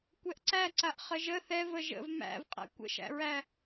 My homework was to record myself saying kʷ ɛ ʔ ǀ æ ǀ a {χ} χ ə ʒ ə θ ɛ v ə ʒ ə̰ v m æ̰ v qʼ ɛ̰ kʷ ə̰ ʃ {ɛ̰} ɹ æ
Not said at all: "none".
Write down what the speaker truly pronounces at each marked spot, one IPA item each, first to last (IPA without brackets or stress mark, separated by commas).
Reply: ʔ, æ̰